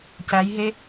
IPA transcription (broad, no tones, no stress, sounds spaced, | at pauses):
c æ j ɦ e